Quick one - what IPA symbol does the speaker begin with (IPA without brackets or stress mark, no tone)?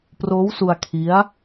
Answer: p